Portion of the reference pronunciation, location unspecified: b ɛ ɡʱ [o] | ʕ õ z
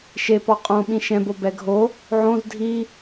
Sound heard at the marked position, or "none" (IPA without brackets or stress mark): o